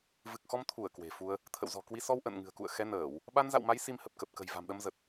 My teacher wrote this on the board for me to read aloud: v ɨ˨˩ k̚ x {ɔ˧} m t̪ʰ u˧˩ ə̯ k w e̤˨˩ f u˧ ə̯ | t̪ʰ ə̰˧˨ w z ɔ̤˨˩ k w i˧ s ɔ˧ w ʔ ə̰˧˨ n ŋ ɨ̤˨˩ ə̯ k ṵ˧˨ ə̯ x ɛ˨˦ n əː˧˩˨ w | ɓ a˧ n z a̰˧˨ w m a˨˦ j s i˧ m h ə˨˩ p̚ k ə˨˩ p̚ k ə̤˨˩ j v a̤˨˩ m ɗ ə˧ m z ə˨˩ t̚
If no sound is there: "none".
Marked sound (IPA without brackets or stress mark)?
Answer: ɔ˧